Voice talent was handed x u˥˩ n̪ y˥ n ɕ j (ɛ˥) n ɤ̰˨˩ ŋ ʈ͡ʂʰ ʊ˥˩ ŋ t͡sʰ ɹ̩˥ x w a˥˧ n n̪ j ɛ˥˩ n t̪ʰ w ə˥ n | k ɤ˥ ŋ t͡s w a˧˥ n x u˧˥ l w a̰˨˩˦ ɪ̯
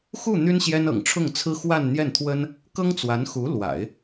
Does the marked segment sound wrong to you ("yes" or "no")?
no